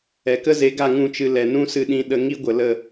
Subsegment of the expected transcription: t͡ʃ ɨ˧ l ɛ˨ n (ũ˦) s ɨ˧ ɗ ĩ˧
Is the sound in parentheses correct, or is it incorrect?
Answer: correct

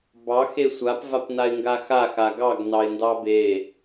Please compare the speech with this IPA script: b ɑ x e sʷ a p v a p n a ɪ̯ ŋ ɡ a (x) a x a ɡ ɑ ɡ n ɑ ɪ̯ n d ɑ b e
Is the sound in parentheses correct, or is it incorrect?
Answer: correct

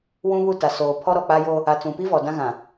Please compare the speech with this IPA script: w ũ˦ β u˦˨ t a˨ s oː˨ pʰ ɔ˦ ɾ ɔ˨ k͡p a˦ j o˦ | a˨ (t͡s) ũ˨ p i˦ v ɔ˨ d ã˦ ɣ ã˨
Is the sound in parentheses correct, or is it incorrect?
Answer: correct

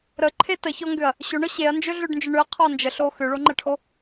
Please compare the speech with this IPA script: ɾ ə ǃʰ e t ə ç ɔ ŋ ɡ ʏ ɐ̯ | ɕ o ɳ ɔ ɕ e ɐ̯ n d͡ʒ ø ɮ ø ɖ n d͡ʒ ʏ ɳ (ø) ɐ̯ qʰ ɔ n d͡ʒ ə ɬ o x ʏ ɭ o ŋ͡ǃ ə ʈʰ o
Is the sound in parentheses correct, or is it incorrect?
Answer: correct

